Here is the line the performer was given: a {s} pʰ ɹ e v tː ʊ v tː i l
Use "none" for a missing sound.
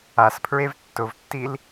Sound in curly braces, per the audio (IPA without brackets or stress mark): s